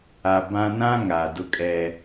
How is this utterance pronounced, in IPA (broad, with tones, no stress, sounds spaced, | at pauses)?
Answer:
a˨ b ã˦ n ã˦ ŋ a˨ d ʊ˦ kʼ ɛ˦